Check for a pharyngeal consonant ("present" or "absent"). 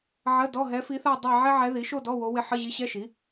present